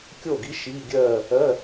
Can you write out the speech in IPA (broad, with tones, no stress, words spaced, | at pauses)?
kʲo˥˩ɡi˧˥ ʃiː˧˥˧ɡʲɜː˥˧ | ɜ˧˥˧